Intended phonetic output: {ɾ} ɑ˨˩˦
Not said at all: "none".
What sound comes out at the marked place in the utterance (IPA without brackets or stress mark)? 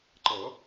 ǃ